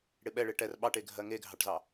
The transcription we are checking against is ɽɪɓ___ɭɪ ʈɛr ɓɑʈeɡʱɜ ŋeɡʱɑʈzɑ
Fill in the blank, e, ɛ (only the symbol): ɛ